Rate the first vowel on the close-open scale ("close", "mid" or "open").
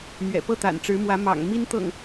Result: mid